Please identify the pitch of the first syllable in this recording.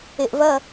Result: low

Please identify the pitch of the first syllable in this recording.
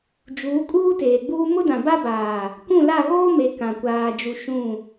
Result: rising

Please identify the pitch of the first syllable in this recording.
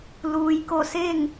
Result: low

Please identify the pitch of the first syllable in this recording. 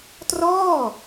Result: falling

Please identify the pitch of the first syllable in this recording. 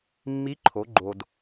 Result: rising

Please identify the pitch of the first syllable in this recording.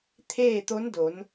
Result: falling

